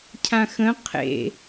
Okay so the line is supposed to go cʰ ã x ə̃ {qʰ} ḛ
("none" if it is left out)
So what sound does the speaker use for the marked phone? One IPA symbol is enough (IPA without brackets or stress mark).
qʰ